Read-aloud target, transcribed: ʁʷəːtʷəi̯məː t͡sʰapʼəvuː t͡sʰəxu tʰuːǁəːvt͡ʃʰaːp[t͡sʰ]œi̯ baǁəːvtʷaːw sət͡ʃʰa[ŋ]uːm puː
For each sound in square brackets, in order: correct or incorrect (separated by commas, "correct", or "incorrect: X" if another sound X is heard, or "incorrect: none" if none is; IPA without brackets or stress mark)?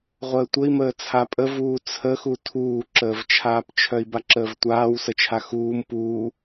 incorrect: t͡ʃʰ, incorrect: x